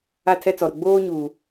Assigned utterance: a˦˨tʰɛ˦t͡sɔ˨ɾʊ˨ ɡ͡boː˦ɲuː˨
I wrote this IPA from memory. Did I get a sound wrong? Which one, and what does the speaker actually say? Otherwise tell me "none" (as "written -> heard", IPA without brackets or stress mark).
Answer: none